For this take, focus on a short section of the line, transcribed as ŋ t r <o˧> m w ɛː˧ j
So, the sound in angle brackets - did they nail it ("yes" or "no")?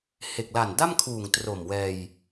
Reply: no